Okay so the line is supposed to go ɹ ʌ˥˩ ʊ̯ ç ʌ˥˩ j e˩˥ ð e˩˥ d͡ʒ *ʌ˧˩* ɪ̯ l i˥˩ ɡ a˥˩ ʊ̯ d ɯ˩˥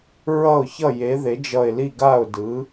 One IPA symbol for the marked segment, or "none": ʌ˧˩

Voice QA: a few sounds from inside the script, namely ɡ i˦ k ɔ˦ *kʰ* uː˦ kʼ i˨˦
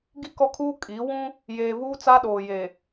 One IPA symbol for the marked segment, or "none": kʰ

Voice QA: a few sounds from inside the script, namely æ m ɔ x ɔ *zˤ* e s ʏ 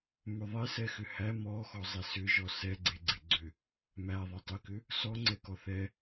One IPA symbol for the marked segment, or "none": zˤ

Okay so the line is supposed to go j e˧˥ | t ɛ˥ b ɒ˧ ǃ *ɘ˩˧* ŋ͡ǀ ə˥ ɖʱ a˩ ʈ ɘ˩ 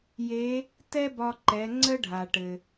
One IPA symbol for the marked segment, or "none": ɛ˩˧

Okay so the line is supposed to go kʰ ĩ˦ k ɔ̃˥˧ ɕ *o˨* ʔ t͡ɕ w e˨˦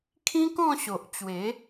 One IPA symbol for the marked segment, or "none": o˨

